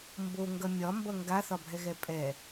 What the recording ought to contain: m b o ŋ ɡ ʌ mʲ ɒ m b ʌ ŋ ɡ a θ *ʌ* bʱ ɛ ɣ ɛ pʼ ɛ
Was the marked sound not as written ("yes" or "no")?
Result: yes